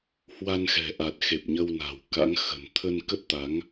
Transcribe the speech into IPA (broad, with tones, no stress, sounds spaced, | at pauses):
h w a˧ n x ɛ̤˨˩ ʔ a˨˩ t̚ x e˨˩ p̚ ɲ ə˧ w n a̤˨˩ w k a̰˧˥ ŋ x ə̤˨˩ n t̪ʰ ə˧ n k ə˦˥ t̚ t̪ a˨˦ ŋ